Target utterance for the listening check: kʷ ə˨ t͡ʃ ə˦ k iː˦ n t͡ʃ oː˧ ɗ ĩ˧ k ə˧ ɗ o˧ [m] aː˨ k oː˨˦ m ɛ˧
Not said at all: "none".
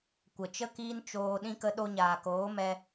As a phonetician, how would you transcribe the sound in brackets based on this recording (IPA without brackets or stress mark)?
ɲ